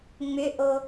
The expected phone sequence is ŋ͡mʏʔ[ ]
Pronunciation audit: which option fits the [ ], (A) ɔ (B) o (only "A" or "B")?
B